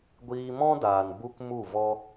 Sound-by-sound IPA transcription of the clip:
ɡʷ iː˧ m ɔ̃˦ d aː˨ n b u˦ k m u˦˨ v ɔ˦

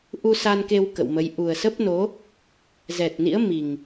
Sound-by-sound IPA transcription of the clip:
ʔ u˧ s a˧ n k e˧ w k ə̰˧˨ w m ə˨˦ j ʔ u˨˩ ə̯ s ə˦˥ p̚ n o˨˦ | z ɛ˨˩ t̚ n ḭ˧˥ ə̯ m i˨˩ ŋ

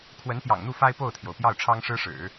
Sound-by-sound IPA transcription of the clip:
kʰ w ə˧˥ n p j ɑ̰˨˩ ŋ n̪ u˥˩ f a˥ ɪ̯ p o˥˩ ʊ̯ t̪ʰ j o˩ ʊ̯ p j ɑ˥˩ ʊ̯ ʈ͡ʂʰ ɑ˥ ŋ ʂ ɻ̩˥ ʂ ɻ̩˨˩˦

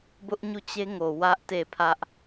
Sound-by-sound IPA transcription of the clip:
b ʊ˦ ʔ ɲ u˦˨ t͡ɕ e˦ ŋ o˨ w ä˦ ʔ t e˦˨ pʰ ä˦ ʔ

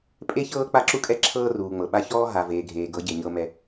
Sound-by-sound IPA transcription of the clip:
pʼ e˦ ç ɤː˦ k͡p a˦ ǁ u˦ kʼ ɛ˦ ǁʰ ɤː˦ r uː˨ ŋ͡m ɤ˨ ɓ a˦ ç ɔː˦ ɦ a˨ v eː˨ ɡʱ eː˨ ɡ ɤ˨˦ ɟ e˨ ɲ ɤ˦ m ɛ˦

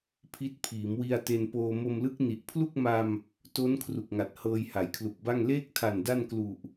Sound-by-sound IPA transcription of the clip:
pʰ i˦˥ t̚ pʰ iː˩˦ m w i˧ a̯ t e˧ n p oː˧ m o˧ m l ɯ˦˥ k̚ n i˨˩ ʔ pʰ l u˥˩ k̚ m a˧ m | t o˦˥ n kʰ r u˨˩ k̚ ŋ a˨˩ t̚ h ɤː˧ j h a˩˦ j kʰ l u˨˩ k̚ b a˥˩ ŋ l eː˥˩ k̚ tʰ a˨˩ n d a˥˩ n k l u˨˩ ʔ

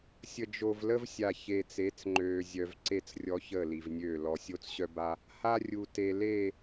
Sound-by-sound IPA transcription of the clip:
sʲ ə˨ d͡ʒ o˨ v l ə˦ v sʲ a˨ ç eː˨ t͡s e˨˦ t͡s ŋ͡ǃ øː˨ zʲ œ˨ v ǀ e˦ t͡s rʲ ɔ˦ ç ə˦˨ l i˨ v nʲ øː˦˨ l ɔ˨ sʲ o˦ t͡s ɕ œ˦ b a˦ | h a˦ rʲ u˨ t e˨ l e˦˨

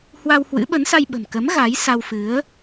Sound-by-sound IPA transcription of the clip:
h w a˧ w h w ɨ̰˧˥ ɓ ə˨˦ n s a˧ j ɓ ə̤˨˩ m k ə˨˦ m ɣ a˨˦ j s a˧ w f ɨ˨˦ ə̯

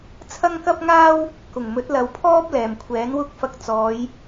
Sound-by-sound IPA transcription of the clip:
t͡sʰ ɐ˥ ŋ k ɐ˥ p̚ ŋ aː˥ w | k ʊ˨˩ ŋ m ɵ˨˥ t̚ l ɐ˨ w pʰ ɔː˥ p̚ l ɛː˨˩ m kʷʰ ɛː˨˥ n w ʊ˥ k̚ f ɐ˧ k̚ t͡s ɔː˨˧ j

